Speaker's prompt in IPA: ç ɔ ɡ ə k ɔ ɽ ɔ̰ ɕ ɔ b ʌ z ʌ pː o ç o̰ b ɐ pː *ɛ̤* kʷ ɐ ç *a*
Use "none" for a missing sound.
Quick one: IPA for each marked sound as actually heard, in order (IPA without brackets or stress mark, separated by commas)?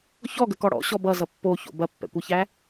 ɛ̰, æ